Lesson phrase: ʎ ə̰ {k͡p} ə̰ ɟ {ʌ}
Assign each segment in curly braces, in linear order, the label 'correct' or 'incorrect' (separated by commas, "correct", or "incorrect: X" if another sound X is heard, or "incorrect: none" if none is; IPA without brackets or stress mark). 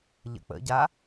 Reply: correct, incorrect: a